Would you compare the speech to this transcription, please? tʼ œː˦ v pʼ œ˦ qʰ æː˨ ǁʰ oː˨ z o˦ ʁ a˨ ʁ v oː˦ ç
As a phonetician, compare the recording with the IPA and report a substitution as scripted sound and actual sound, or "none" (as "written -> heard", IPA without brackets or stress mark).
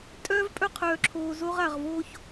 æː˨ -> œː˨